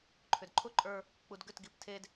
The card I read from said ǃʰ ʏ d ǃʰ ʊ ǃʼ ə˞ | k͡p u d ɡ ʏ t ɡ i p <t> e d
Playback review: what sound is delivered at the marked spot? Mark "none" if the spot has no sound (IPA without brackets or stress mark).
tʰ